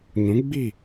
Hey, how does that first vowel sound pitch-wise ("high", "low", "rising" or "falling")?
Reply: rising